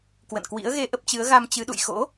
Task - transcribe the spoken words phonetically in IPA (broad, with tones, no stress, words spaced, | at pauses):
kwə̰˧˨nkwḭ˧˥ə̯ ɣe˧ʔə˦˥p̚t͡ɕɨ˨˦ə̯ ɣa˧mt͡ɕɨ˨˦ɗṵ˧˨j xo̰˧˥